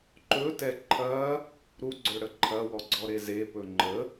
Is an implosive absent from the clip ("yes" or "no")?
yes